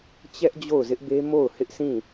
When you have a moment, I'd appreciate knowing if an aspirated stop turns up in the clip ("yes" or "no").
no